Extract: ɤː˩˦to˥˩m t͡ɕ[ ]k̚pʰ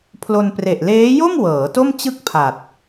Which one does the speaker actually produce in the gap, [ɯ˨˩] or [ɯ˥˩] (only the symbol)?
ɯ˥˩